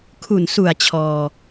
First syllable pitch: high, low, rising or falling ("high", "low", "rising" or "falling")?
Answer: low